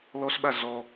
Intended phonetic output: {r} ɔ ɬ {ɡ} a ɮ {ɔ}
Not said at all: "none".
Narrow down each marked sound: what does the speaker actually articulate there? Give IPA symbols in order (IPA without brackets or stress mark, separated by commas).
l, ɓ, ɔ